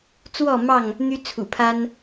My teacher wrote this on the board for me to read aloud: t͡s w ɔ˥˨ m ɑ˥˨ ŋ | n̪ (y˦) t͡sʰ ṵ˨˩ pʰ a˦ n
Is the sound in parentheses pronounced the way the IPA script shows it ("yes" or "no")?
yes